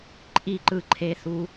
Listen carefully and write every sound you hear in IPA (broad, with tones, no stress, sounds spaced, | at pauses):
ǃʼ i˦˨ ǃ ɯ˧ ǃʰ e˧ θ u˧